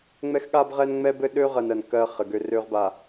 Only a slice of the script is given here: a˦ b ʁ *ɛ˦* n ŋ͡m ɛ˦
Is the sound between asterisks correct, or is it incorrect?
correct